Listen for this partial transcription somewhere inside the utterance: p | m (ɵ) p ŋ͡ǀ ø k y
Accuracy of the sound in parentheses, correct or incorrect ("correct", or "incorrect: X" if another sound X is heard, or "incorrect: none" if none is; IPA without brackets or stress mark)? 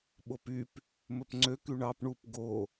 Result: correct